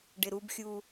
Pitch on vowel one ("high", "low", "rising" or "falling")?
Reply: low